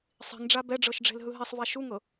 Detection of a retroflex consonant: present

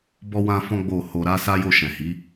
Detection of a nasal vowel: present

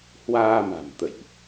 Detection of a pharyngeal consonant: absent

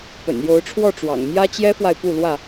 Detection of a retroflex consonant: present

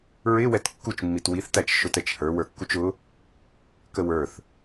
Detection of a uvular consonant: absent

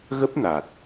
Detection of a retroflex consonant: absent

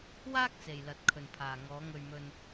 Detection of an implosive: absent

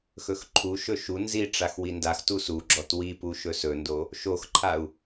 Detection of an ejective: absent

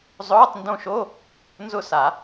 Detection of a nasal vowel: present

